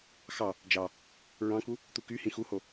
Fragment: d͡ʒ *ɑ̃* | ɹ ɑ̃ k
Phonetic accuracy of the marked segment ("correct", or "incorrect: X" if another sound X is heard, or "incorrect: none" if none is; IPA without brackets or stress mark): incorrect: ɑ